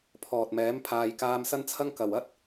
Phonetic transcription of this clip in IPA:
pʰɔː˨t̚mɛː˨˥m pʰaː˨jkaː˧msɐ˥nt͡sʰɐ˥ŋ kɐ˨˩wɐ˥t̚

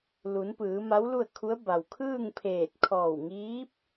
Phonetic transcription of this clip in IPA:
lu˩˧npɯː˩˧ ma˧˥wlu˥˨ə̯kʰu˧˥ə̯ ba˩wkʰɯː˥˨ŋpʰeː˧˩t̚ kʰɔː˧˩wŋiː˧˥p̚

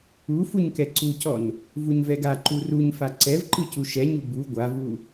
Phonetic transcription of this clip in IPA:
u fuɲkɛǀucɔn | vuɲvɛɡa ǃuruɲfa ǀɛvǃɯcu ʃɛɲu bu ɡʷavu

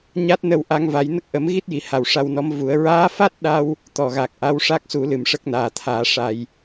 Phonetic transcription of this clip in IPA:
ɲa˦˥t̚nə˧wʔa˧ŋva˨˩˦j nə˦˥k̚ʔə˨˩˦mɣi˦˥t̚ji˨˩˨ ha˨˩wʂa˧wnɔ˧˥mvu˨˩˦ə̯ ɹaː˧˥fa˦˥t̚ɗa˧w | t̪ɔ˨˩ɣa˨˩k̚ʔa˧˥w ʂa˦˥k̚su˨˩˦lɨ˨˩m ʂə˦˥k̚naː˨˩t̪ʰaː˨˩˦ ʂa˧j

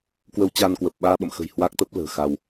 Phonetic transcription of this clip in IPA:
kwə˧w t͡ɕa˧nkwə˨˩p̚ ɓaː˧ɓə̰˧˨mxə̤˨˩j hwa˦˥k̚t̪ə˦˥p̚lə̤ː˨˩xa˧w

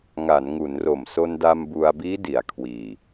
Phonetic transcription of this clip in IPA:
ŋa˩˦nŋu˩˦n ro˨˩mso˧nda˧m bu˧a̯ biː˦˥ di˩˦a̯kʰwiː˨˩

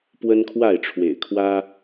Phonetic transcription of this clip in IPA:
pwə˦nkʰwa˥˨ɪ̯ʈ͡ʂʰwḛ˨˩ɪ̯kʰwä˦

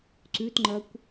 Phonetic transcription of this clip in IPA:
ǀʉtŋ͡ǃɐkʷ

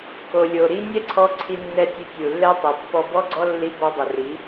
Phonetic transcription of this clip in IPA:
ko˨lʲo˨ɾi˦ nʲɛ˦ǀʰɔ˧ ǀʰi˧nːɛ˧tʲɵ˧ tʲu˨lːɛ˦tˤɵ˨ pːɔ˧bɔ˦ɡ͡ǀɔ˦ lːi˧bɔ˧ dˤɛ˨ri˨˦

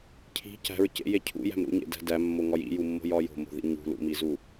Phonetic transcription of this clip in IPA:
cʰi̤ cæ̤ɹ cḛje cʰṵjæ̤m ɾṵɲḛdæ̤ dæmːoŋɒj ḭjumːo̤jɒ jo̤mo̤ðḭ ɲṳ lṵmizu

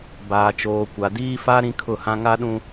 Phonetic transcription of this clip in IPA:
baː˨t͡ʃoː˨ kʷa˨diː˦ fa˦ ɾĩ˦kʰʊ˦˨hã˦ ŋa˦ɗũ˦

